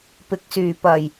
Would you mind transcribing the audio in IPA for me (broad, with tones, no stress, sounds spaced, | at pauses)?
p ɪ˨˥ k̚ s yː˨˩ p ɐ˨˩ j